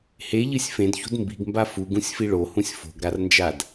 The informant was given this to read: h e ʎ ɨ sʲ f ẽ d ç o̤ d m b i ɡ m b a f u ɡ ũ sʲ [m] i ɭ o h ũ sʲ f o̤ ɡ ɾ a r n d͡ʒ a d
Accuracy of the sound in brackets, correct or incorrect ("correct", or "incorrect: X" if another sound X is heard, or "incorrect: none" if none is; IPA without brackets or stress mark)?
incorrect: f